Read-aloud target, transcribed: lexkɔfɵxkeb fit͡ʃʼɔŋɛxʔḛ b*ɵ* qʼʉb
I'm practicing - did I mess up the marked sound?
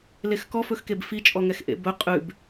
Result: no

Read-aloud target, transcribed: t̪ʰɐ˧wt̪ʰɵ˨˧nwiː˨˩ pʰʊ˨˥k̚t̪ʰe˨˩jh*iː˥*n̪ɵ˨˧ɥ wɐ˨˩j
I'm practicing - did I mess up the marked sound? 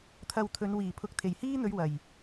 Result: no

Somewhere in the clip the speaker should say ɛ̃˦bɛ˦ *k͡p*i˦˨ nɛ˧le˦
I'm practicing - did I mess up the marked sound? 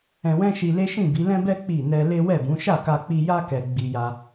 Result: no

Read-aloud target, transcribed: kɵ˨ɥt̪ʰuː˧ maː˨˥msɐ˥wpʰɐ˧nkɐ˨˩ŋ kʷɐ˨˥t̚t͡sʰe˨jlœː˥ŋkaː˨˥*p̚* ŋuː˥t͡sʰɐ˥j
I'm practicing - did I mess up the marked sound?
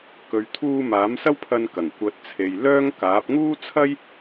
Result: no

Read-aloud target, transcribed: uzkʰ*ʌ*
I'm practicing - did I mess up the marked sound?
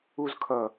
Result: no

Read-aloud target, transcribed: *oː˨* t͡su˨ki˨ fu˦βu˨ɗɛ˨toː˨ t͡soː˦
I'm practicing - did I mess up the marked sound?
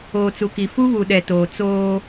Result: no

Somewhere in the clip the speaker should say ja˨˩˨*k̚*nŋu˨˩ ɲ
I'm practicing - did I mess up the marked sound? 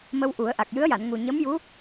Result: yes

